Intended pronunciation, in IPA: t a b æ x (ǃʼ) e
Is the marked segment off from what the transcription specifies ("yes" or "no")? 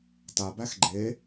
yes